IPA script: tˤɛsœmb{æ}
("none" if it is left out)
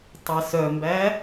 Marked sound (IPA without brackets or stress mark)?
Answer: æ